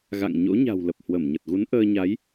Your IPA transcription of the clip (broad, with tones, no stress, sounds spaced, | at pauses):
ɣ a̰˧˨ ŋ ɲ o̰˧˥ ɲ a̤˨˩ w l ə˨˩ p̚ h w ə˧˩ m ɲ ə˨˩ t̚ ɣ u˨˦ n ʔ əː˧ ɲ a˨˦ j